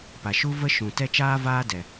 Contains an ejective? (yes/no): no